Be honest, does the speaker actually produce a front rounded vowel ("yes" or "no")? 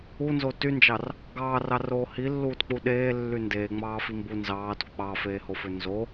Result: yes